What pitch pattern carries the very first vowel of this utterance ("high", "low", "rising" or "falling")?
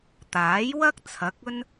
rising